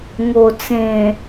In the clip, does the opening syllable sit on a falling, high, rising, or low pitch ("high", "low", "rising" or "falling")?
low